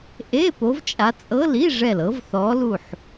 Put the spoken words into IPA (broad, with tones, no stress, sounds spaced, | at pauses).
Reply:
ʔ e˧˥˧ p o˨˦ v t͡ʃʼ a˨˦ t͡sʼ ɤ˧˥˧ l i˧˥˧ ʐ ɛ˧˩ l ɤ˨˦ v θ ɔ˨˦ l u˧˩ ħ